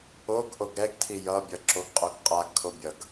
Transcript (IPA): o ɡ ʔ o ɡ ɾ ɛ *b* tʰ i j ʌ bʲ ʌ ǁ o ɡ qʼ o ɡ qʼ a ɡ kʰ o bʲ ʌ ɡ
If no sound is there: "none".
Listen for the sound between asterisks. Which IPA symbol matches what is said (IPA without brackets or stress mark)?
ɡ